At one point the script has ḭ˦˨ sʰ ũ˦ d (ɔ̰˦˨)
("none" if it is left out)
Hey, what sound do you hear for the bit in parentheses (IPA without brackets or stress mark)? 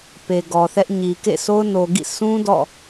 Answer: ɔ̰˦˨